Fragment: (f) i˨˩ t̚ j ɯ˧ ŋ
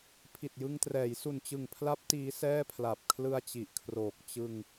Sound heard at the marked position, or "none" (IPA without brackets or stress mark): pʰ